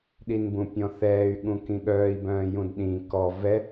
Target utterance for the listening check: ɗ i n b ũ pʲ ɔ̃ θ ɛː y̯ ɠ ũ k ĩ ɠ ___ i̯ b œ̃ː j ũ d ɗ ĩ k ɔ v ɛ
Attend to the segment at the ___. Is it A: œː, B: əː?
A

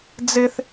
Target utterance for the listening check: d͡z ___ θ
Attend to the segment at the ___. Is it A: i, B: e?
B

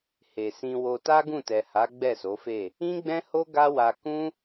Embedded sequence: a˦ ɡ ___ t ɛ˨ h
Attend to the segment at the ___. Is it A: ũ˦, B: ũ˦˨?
B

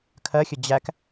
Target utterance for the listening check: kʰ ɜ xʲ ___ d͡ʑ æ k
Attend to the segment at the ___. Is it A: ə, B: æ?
A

